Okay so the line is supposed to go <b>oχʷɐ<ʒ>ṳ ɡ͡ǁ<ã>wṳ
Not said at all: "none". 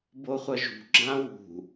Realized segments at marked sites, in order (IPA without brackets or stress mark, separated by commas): b, ʒ, ã